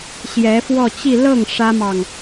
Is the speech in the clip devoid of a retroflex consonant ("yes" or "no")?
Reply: no